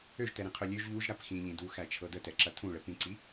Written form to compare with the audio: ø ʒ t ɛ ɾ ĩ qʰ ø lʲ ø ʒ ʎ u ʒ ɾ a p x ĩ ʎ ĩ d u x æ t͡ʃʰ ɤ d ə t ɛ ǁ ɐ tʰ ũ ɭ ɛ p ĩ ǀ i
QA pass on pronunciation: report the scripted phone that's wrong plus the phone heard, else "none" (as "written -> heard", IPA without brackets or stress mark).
none